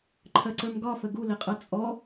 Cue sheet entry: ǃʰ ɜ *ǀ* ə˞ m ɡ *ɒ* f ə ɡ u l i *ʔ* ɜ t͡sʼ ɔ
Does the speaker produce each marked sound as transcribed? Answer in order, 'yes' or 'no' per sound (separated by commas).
yes, yes, no